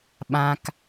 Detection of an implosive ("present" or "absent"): present